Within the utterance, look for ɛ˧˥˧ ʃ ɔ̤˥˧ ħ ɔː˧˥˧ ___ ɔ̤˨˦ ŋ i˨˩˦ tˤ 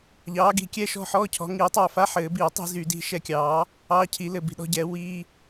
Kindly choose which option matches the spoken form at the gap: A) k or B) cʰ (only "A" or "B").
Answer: B